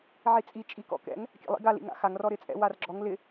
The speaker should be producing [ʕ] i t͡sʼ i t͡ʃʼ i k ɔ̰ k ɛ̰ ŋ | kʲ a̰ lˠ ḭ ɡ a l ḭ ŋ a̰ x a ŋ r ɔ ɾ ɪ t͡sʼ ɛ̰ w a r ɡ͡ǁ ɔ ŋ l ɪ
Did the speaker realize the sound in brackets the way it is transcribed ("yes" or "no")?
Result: yes